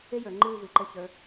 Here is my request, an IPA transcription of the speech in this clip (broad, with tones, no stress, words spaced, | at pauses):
e˥jə˞˩˧ŋ͡ǃɨː˦˨ vɨ˩˧ǃɘ˦˨çə˞˨˥